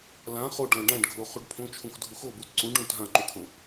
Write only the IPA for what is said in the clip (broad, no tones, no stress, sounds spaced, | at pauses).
l ã χ o ɖ l ã ɖ ã ɖ ɡʱ o χ u ɖ pʰ õ t͡ʃʰ ũ x dʱ u x o b u t ǀ ũ ɖ ũ t ɦ ã ǃ u kʰ õ